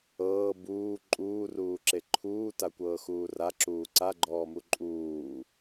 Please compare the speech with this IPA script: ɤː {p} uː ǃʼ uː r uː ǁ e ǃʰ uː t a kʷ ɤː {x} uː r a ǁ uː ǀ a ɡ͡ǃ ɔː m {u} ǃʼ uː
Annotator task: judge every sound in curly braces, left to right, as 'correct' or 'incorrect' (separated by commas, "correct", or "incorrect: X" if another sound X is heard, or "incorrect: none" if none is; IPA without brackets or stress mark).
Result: incorrect: b, correct, correct